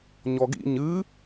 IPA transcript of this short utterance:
ɲ ɔ ɡ ḭ ɲ ɨ

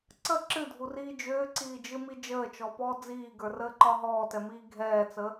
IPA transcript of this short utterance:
ǀ ə ǁ ɨ dʱ u r iː d͡ʒ ʏː ǀ iː d͡ʒ ɨ m i d͡ʒ əː t͡ʃ ɔ p ɔː d͡z iː ɡ ə˞ r əː ǃ ɒ ɦ ɔː t ɛ m iː ɡʱ ɛː t͡s ə

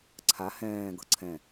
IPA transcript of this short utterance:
ǀʰ a h ɛ̃ː ɡ ɤ ǀʰ ɛ̃

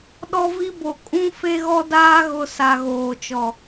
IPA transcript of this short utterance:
ɗ ɔ˦ v i˦ b o˨ kʼ ũ˦ f e˦ ɣ ɔ˦ d aː˦ ɣ ʊ˨ s a˨ ɣ oː˨ t͡ʃ ɔ˨

